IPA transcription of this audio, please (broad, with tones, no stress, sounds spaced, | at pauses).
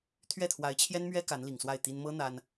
t̪ʰ ɥ ɛ˥˩ t̪ʰ w a˧˥ ɪ̯ t͡ɕʰ j ɛ˥ n m ɥ ɛ˥ k a˧˥ n l i˨˩ ŋ s w a˥˩ ɪ̯ t̪ i˥ n m ɤ˥ n̪ a˥ n